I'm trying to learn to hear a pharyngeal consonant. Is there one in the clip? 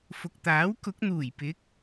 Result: no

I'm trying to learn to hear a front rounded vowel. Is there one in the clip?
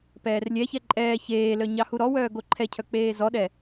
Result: yes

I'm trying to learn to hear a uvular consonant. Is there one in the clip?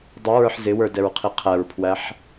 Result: yes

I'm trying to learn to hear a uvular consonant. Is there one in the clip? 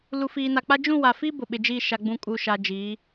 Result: no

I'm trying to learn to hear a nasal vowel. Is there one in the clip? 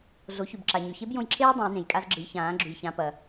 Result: yes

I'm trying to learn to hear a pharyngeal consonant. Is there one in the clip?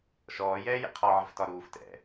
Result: yes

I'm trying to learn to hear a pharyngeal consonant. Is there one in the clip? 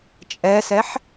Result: yes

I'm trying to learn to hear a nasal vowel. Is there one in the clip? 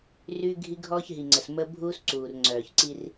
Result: no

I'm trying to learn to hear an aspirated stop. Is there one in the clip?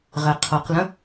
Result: yes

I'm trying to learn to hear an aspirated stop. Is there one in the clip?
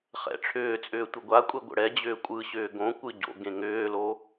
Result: yes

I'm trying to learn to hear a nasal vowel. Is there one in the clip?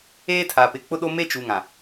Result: yes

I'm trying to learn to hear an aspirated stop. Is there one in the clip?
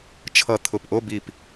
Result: yes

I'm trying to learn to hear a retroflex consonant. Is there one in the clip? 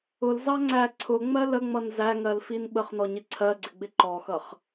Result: no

